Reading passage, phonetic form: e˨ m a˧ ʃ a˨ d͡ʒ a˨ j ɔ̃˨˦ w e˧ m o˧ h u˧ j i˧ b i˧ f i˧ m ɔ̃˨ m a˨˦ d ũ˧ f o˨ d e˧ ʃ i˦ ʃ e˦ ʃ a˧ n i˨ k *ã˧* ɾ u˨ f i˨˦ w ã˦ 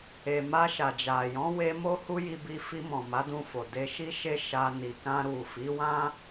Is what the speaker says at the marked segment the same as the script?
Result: yes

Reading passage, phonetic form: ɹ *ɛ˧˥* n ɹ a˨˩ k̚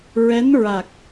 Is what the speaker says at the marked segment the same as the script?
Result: yes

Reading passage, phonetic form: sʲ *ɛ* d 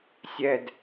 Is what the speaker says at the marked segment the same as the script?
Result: yes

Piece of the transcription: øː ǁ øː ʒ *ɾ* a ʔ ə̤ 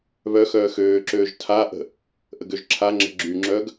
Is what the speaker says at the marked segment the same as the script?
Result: no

